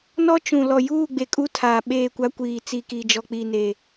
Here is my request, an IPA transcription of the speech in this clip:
n ɔ˦ t͡ʃ ũ˨ l ɔ˨ j uː˦˨ ɡ͡b e˨ kʼ u˦ tʰ aː˨ ɓ eː˦˨ kʷ a˦ kʷ iː˨ t͡s i˨ k i˨ d͡ʒ ɔ˨ k͡p iː˨ n eː˨

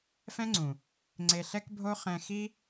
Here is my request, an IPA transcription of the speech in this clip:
f ɛ̃˦ ŋ͡ǀ ũ˨ | ŋ͡ǀ e˧ ɬ ɛ˦ k bʱ o˦ χ ɛ̃˧ x i˦

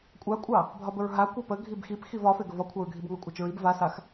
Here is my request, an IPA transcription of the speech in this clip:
kʷʼ a kʷʼ ɑ | bʱ ɒ b ə ɹ ɦ a kʷ a p ə ɡʱ i b x i p x i v ɒ f e ɡ ə v ɒ kʷʰ a ɹ ɡʱ i b ŋ ɑ kʷʼ a t͡ʃ ɹ i b v a s a x

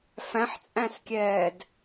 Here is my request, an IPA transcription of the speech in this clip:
f æ̃ ħ t͡sʼ æ̃ s kʲ ɛː d

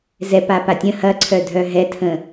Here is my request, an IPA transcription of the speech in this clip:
z ɛ p a p a tʲ ə̃ h ɐ ǀʰ œ dʱ œ ɦ ɛ tʰ ə̃

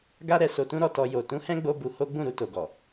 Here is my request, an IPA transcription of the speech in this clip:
ɡ a˦ ɾ ɛ˧ s o˧ t ũ˦ ɾ ɔ˦˨ t ɔ˧ j o˨ t ũ˨˦ h ɛ̃˦ ɡ͡b o˧ b u˧ h o˦ ɡ͡b ũ˦˨ ɾ u˧ t o˨ ɡ ɔ˨

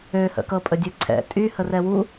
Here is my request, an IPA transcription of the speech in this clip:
ø h ə̰ k ɤ pʼ ə dʲ ø ǀʰ ɛ̰ tʼ y h ə r ɛ w u

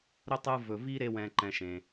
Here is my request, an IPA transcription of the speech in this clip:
ɾ ɵ˥ tˤ ɯ˦ v ɵ˨ v i˥ ɾ e˦ w ɛ̃˨ ǃ ɛ̃˨ ʃ ẽ˩

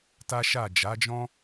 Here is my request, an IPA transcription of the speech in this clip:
t a˦ ʃ a˦˨ d͡ʒ a˨˦ d͡ʒ ɔ̃˦

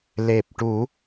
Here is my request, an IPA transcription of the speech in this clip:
l e˨˩ p̚ ʈ u˨˩˦

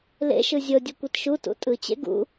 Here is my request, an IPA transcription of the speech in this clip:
l ḛ ʃ ɯ zʲ ɤ dʲ u kʷ i t ʃ u t ṵ tʼ ɯ t͡ɕ ḛ ɡ ṵ

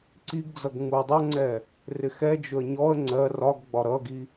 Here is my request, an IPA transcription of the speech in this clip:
ǀ i ɡ d͡z ʌ ɡ ŋ͡m u ə̯ dˤ ʌ ŋ͡ǀ ɛ | r ɪ x ɛ d͡ʒ ʊ ə̯ ɲ ɔ ə̯ ŋ͡ǀ ɜ r ɒ ɡ ɡ͡b ɒ ɾ ʌ ɡ i

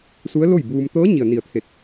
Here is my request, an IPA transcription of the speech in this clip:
s u˧˥ ə̯ l o˥˨ j b uː˧ m t̪ ɤː˧˥ ɲ i˩ ə̯ n i˧˩ ə̯ t̪ʰ e˧˩ t̚

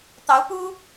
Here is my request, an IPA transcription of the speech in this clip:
t̪ ɑ˧˥ ʊ̯ p u˥

